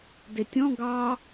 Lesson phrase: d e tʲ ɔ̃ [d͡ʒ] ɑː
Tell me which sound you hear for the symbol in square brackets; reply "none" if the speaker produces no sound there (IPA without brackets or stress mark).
ɡ